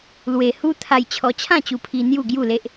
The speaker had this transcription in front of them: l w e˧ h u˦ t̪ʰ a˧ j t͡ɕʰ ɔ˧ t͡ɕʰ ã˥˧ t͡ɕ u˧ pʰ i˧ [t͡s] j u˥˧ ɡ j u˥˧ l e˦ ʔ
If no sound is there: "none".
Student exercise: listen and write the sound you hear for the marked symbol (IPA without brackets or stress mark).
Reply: n̪